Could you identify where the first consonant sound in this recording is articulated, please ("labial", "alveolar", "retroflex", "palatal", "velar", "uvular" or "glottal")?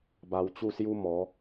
labial